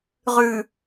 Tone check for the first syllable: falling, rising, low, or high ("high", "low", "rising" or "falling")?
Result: low